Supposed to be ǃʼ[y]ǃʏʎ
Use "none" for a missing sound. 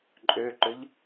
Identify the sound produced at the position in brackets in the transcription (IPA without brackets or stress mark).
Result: ø